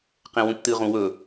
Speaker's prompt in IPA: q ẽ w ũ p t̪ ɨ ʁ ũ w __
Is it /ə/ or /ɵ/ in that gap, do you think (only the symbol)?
ɵ